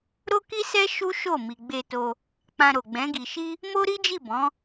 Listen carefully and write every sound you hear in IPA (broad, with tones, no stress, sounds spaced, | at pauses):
ɾ o˦ k i˦ s ɛ˦ ʃ u˦ ʃ o˦˨ m i˨ ɡ͡b e˧ t o˧ | k͡p ã˧ ɾ o˨ ɡ͡b ɛ̃˨˦ ɡ i˧ ʃ i˦ | m o˦ ɾ i˦ d͡ʒ i˦˨ b ɔ̃˨˦